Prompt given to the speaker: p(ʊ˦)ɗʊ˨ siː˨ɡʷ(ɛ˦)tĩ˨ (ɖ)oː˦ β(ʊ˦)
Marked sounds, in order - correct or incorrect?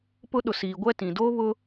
correct, correct, incorrect: d, correct

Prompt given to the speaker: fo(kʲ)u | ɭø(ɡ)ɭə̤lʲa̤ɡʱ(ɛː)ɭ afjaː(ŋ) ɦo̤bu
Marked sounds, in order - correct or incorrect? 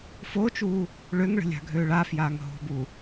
incorrect: t͡ʃ, incorrect: ŋ, incorrect: øː, correct

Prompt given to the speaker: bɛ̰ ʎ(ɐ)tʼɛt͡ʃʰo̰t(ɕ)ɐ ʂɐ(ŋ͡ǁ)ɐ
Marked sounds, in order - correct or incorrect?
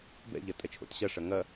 correct, correct, incorrect: ŋ

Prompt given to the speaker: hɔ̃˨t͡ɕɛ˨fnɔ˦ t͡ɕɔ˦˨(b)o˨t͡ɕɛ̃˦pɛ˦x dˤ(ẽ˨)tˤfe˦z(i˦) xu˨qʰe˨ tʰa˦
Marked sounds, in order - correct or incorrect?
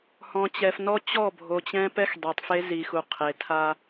incorrect: bʱ, incorrect: e˨, incorrect: i˨

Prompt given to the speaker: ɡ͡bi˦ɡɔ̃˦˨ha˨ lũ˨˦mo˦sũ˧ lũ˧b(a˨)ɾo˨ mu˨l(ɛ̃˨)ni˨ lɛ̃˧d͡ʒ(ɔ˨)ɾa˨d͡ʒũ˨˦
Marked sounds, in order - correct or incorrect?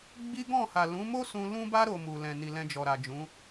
incorrect: a˧, correct, correct

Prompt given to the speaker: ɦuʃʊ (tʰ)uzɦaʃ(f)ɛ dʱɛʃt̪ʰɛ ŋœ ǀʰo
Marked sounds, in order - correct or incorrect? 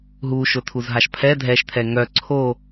correct, incorrect: pʰ

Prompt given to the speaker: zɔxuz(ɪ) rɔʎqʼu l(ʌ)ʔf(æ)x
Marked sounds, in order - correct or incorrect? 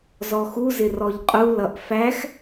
correct, correct, correct

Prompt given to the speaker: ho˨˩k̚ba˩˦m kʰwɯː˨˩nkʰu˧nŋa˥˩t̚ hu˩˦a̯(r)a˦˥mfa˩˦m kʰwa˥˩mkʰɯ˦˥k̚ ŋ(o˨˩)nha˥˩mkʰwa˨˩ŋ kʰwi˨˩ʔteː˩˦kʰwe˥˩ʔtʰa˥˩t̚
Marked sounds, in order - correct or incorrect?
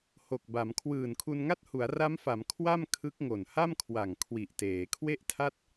correct, correct

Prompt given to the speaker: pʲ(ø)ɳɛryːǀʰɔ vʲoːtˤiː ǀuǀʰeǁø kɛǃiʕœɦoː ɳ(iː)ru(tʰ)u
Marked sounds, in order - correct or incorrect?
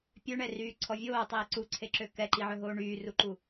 correct, incorrect: yː, incorrect: ǃ

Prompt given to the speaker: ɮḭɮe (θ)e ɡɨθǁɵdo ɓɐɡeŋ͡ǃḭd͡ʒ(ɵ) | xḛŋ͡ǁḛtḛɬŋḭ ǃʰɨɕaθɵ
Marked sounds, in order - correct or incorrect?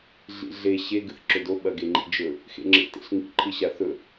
incorrect: ɕ, correct

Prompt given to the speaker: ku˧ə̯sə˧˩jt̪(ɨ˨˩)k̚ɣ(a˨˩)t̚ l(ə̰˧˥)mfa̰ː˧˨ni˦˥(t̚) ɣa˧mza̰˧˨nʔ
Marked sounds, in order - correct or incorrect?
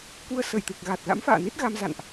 correct, correct, incorrect: a̰˧˥, correct

